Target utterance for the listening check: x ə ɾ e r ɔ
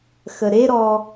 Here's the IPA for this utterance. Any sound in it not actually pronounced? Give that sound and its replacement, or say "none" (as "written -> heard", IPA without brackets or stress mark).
r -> ɾ